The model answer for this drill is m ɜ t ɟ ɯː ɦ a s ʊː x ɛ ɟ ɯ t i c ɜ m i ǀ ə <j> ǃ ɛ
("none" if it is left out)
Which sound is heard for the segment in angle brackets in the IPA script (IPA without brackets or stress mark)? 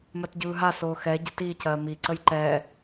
j